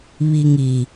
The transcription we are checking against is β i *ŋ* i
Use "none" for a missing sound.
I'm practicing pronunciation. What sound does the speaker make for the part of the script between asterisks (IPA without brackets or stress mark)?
ŋ